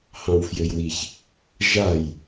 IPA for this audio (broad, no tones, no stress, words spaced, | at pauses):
hɑ̃wfjøjwiç | ʒaj